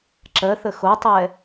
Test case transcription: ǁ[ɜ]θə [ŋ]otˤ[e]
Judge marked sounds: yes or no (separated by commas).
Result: yes, no, no